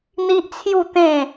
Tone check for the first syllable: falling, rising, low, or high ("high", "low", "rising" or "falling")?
high